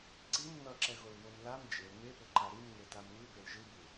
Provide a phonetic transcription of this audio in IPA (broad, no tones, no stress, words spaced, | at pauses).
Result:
ǀim nʌǁɛɣolβom lam d͡ʒel mepoǃa ɾimŋetam βɯbel ʒɯbu